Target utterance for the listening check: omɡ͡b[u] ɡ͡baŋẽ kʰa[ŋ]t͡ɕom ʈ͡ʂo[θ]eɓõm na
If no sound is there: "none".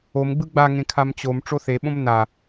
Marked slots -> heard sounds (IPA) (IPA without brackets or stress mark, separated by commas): ɯ, m, θ